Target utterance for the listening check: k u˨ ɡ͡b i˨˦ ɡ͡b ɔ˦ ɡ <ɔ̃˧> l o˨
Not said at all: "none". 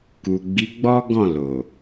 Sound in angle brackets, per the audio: ɔ̃˦˨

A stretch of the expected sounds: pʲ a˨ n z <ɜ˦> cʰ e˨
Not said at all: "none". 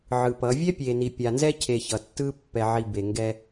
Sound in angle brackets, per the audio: ɛ˦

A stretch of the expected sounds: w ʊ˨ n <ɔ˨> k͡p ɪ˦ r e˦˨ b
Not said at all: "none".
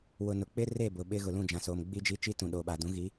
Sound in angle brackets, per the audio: ʊ˨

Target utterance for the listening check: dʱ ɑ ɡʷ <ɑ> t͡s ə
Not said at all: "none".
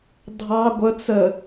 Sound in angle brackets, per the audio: ə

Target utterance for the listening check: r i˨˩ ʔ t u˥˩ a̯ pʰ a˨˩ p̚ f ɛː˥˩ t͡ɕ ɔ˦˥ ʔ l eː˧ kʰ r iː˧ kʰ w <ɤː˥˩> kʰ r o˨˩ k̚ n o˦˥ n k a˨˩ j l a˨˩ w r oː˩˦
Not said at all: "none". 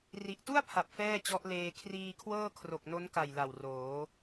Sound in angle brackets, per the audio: ɤː˥˩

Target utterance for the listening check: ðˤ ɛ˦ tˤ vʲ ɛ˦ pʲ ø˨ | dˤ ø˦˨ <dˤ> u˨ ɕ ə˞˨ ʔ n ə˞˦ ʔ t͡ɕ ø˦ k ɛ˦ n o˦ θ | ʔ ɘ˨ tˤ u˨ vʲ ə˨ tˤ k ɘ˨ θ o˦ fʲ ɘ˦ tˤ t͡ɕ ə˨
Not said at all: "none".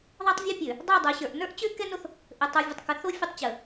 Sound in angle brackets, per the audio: dˤ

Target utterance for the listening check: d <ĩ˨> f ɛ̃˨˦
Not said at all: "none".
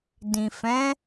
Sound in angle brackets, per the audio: ĩ˨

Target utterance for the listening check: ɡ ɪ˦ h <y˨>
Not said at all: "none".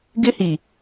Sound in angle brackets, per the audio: i˨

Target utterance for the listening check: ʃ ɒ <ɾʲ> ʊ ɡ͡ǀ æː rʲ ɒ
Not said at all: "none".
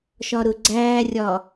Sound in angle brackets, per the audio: ɾ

